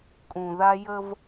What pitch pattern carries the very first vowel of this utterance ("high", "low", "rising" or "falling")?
low